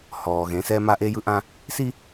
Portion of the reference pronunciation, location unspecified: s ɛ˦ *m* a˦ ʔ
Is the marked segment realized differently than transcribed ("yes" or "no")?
no